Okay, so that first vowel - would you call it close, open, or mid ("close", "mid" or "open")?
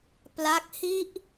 open